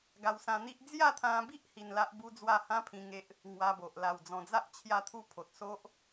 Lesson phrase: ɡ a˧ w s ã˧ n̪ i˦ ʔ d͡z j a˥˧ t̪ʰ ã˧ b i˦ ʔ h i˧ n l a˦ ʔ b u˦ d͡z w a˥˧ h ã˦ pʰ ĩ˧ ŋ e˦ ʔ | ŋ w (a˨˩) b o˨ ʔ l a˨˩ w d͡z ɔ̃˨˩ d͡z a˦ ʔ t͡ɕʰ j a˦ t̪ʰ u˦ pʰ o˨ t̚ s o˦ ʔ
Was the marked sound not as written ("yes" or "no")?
yes